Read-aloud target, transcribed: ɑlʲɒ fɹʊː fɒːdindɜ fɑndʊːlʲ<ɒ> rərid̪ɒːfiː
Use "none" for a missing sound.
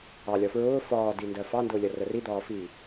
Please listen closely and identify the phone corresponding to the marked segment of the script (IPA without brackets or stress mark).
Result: ʌ